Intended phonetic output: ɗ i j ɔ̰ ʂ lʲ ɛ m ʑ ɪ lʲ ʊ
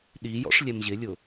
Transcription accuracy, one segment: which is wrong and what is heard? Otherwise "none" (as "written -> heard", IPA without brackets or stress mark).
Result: none